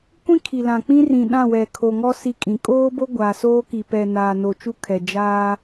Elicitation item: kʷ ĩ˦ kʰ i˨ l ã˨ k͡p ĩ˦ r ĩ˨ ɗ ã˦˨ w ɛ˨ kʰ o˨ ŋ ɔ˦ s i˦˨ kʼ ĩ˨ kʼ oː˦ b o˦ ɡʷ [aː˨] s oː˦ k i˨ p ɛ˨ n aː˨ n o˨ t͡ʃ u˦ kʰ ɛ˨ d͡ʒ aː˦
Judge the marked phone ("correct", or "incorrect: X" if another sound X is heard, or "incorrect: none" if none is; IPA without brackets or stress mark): correct